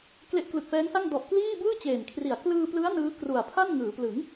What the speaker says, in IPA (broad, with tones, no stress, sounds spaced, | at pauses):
k l e˦˥ ʔ k l ɯ˨˩ k̚ f ɛː˦˥ ŋ s a˥˩ ŋ d ɔ˨˩ ʔ k l iː˥˩ b ɯː˥˩ t͡ɕ eː˨˩ n kʰ r i˨˩ a̯ k l ɯː˧ p l ɯ˦˥ a̯ n ɯː˦˥ k r u˨˩ a̯ pʰ a˥˩ n ŋ ɯː˩˦ p l ɯ˩˦ ŋ